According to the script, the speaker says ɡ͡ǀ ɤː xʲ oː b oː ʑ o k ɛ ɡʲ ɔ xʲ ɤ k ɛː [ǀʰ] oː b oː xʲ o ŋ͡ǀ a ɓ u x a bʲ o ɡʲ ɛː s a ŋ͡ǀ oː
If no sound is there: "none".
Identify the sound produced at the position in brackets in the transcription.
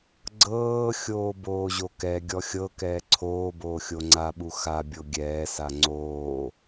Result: ǀʰ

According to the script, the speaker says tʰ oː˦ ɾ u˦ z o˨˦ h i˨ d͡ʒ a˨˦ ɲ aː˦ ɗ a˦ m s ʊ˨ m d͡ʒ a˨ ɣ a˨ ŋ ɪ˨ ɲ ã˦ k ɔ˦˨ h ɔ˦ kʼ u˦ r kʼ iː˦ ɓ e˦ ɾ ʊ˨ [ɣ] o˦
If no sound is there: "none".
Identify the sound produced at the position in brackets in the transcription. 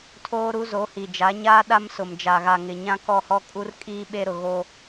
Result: ɣ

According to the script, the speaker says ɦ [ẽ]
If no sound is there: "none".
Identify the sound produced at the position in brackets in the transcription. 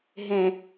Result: ẽ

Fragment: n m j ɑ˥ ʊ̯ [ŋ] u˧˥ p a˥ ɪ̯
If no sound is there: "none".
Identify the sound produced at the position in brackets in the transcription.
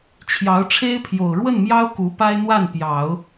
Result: k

